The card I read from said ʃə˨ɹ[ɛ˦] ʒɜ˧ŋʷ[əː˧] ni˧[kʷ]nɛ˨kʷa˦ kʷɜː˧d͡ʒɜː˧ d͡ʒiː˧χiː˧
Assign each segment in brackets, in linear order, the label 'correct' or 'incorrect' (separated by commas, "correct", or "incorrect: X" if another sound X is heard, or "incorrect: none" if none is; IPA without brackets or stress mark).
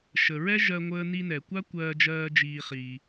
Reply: correct, correct, incorrect: none